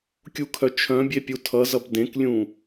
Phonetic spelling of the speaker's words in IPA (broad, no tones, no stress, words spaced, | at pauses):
kʲukʰœt͡ʃʰœ̃bʲe pʲutʰʌzʌb dẽklʲũ